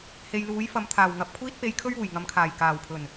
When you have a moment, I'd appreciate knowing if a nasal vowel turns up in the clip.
no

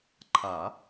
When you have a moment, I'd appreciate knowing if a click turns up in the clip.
yes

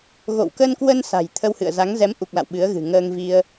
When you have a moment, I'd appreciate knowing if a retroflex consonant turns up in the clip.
no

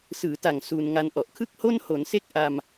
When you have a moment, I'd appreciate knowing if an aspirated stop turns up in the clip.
yes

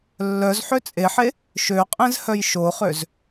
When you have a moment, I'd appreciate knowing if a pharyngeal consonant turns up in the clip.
yes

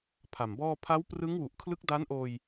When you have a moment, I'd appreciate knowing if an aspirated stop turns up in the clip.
yes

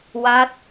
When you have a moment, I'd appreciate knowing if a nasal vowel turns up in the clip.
no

